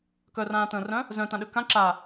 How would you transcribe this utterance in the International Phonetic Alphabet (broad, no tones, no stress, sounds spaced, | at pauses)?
k œ r ãː t ə̃ː r œ̃ | z œ̃ t ã ɗ ø k ã ǁ a